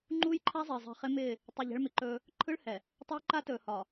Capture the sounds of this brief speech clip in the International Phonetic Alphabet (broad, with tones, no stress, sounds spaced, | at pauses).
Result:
ŋ͡ǃ uː˦ j ǃʰ a˦ zˤ ɪː˨ zˤ ɛ̤˨ χ ɪ˦ m ɪː˦˨ | tˤ ɪ˨ ʎ ɛ̤˦ ɭ m ɪ˨ ǃ ɵː˦ | ǃʰ ɯ˦ ɭ h ɛ˨ | tˤ ɵ˦ j ǃ a˦ t ɵː˨ h ɒ˨